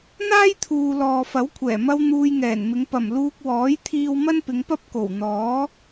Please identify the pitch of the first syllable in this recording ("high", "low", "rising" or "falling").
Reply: high